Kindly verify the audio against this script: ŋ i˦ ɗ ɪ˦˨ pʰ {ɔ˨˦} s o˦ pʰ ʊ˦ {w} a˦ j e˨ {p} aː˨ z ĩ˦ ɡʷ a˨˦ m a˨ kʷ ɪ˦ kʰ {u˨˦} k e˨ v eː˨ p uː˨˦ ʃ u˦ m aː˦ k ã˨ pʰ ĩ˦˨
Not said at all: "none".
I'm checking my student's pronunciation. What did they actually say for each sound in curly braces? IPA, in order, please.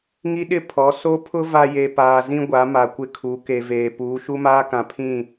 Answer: ɔ˨˦, v, p, u˨˦

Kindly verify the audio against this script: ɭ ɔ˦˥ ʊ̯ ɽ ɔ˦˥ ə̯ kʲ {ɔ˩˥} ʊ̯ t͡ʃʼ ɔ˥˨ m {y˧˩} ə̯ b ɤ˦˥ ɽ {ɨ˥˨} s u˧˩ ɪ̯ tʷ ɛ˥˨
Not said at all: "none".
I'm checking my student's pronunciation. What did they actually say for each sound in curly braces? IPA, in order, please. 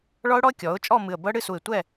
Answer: ɔ˩˥, ɨ˧˩, ɨ˥˨

